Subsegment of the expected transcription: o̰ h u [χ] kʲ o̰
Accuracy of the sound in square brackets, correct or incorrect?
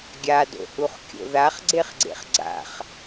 correct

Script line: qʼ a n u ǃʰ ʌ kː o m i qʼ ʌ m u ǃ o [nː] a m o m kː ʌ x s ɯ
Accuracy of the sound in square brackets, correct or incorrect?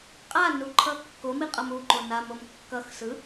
incorrect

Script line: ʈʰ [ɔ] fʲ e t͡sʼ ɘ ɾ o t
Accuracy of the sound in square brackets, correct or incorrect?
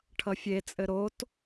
incorrect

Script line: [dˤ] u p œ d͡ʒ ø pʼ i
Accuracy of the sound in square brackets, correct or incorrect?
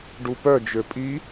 incorrect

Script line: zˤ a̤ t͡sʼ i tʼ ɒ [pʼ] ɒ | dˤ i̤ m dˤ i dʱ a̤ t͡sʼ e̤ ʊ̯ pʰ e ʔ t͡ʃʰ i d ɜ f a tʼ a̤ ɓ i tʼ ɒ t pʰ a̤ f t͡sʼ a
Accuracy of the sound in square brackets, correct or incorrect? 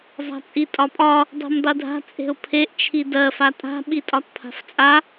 correct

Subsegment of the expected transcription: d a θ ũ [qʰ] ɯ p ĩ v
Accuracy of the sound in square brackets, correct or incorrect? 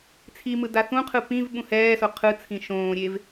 correct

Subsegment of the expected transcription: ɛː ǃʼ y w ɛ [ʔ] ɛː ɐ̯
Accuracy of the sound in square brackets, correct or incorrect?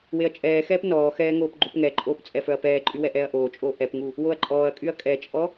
correct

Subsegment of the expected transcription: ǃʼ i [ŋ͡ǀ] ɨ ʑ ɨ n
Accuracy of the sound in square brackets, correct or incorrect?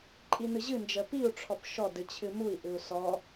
incorrect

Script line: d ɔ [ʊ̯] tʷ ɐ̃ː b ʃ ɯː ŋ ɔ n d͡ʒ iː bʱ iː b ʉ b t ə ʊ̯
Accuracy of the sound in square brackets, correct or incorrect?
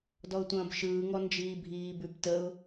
correct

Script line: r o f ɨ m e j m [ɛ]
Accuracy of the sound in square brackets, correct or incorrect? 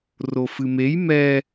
correct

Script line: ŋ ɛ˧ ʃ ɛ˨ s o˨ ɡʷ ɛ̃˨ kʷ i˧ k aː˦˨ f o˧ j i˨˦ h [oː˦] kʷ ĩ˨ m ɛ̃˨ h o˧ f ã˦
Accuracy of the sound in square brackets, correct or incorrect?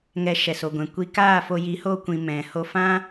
incorrect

